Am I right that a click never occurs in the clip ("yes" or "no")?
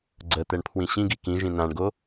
no